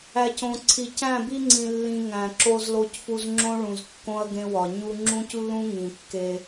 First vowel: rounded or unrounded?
unrounded